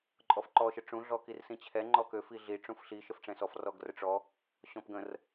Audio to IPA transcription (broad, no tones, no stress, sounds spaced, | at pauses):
ǃʼ ɔ f ǃ ɔ ʃ ə ʈ͡ʂ ũ ɮ ɔ k i r s ĩ t͡ɕʰ ɛ ŋ͡ǃ ɔ k ø f i ɮ i ʈ͡ʂ ũ f ɬ i ʃ ə f ʈ͡ʂ ɛ̃ s ɔ f r ɔ ɡ r ə ʈ͡ʂ ɔ | ɕ ɔ̃ p ɡ ə̃ r